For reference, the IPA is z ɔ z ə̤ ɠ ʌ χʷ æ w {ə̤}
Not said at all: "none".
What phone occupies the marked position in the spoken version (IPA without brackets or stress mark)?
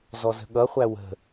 ə̤